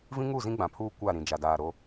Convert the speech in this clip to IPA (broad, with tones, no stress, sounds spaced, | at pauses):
v ĩ˦ ŋ u˦˨ z ĩ˦ ɡ͡b ã˨ pʰ uː˦ kʷ a˦˨ ɾ ĩ˨ d͡ʒ a˨ d aː˨ ɾ o˦